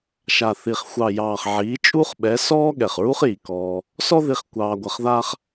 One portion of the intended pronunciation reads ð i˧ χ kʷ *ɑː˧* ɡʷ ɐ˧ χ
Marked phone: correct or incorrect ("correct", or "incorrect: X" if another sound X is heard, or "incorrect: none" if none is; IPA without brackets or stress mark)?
correct